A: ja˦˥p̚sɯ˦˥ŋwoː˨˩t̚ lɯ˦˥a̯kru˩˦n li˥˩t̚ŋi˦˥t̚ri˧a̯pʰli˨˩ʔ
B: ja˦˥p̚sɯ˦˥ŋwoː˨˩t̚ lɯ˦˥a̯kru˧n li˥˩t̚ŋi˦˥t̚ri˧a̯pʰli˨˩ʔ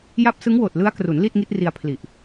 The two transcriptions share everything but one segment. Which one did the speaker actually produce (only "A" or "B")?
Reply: A